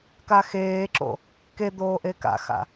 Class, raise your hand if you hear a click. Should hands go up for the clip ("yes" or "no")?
yes